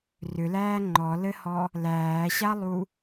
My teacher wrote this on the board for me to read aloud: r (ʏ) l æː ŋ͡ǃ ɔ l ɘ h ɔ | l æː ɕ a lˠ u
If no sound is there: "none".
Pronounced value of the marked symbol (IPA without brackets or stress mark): ʏ